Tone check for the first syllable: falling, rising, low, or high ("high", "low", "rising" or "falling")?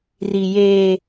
high